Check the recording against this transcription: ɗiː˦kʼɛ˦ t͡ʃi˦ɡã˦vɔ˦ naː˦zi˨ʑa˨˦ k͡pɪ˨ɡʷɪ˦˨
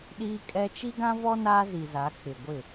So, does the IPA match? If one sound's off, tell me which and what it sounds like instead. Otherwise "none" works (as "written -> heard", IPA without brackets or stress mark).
ʑ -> z